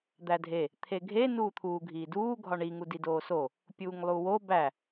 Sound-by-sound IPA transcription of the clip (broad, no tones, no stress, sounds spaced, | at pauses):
d̪ æ dʱ e | t̪ʰ e ɡʱ e n uː t̪ʰ uː ɡʱ iː d uː ɡʱ ɒ ɳ i ŋ u d i d oː s o | pʲ uː ŋ lˠ u w o b æ